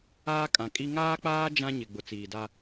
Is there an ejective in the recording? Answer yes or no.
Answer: yes